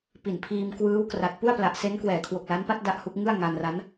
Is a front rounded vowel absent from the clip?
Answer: yes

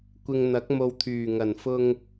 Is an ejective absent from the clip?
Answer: yes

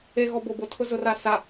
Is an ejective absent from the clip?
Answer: yes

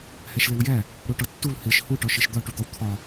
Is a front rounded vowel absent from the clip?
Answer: yes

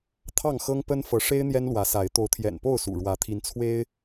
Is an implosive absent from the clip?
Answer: yes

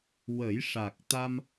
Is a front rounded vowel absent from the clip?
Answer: yes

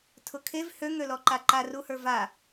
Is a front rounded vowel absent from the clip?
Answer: no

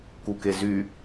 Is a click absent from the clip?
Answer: yes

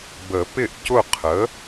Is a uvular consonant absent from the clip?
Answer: no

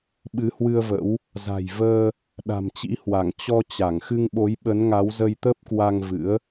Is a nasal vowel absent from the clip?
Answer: yes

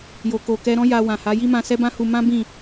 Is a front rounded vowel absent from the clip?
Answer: yes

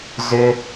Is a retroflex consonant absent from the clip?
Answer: yes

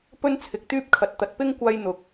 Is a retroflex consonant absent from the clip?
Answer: yes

